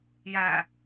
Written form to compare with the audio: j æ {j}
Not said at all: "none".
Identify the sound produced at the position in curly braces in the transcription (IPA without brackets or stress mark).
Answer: none